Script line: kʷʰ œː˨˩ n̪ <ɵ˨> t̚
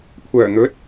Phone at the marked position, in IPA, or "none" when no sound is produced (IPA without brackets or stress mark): ɵ˨˥